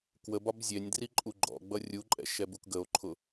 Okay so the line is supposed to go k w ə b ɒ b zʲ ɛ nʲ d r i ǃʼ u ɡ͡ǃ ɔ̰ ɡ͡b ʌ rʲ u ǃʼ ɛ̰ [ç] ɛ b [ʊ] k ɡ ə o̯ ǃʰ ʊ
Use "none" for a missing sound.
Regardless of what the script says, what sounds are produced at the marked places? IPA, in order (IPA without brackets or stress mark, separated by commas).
ʃ, u